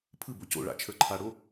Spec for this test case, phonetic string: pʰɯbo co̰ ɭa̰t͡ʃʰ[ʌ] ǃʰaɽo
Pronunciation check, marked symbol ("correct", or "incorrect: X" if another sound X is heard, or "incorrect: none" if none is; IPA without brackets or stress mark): incorrect: ə˞